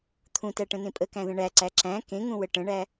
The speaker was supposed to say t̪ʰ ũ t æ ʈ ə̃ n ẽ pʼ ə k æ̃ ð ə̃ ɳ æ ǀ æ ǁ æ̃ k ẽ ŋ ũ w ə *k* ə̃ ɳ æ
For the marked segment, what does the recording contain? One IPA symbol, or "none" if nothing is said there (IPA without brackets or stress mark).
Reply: ʈ